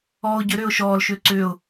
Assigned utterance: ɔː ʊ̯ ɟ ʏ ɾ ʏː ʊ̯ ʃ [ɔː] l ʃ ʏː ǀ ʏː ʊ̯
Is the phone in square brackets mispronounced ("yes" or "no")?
no